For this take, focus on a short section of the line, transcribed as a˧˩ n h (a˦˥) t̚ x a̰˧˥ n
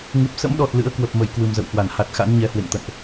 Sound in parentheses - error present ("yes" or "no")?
yes